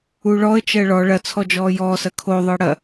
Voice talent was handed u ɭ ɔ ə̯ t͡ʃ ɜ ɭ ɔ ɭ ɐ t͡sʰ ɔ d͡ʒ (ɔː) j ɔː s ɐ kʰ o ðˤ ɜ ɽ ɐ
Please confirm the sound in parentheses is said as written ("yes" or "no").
yes